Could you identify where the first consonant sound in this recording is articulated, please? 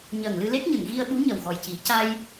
palatal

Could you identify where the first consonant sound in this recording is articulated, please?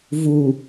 labial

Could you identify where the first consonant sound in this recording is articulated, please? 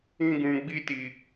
velar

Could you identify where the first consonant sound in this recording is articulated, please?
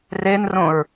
alveolar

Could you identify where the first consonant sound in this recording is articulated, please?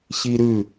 palatal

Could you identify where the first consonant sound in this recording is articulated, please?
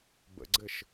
labial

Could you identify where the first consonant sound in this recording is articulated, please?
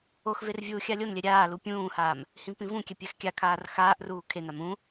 velar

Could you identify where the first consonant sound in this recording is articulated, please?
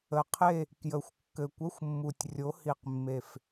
uvular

